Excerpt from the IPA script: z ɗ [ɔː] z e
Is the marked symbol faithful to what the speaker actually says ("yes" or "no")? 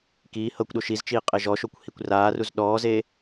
yes